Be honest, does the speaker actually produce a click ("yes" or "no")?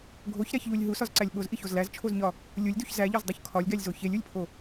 yes